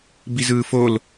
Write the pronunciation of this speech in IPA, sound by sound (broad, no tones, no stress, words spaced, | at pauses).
bizɯːfol